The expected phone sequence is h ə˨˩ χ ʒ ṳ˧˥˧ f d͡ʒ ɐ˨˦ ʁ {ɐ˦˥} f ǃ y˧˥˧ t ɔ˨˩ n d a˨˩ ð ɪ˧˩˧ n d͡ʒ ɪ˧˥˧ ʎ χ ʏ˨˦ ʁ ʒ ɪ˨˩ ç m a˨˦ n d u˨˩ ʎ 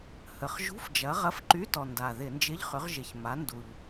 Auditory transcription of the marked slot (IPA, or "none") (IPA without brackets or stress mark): ɐ˧˥˧